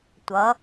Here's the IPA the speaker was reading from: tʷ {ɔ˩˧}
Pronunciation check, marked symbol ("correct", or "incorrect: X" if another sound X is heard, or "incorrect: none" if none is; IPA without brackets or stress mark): incorrect: ʌ˩˧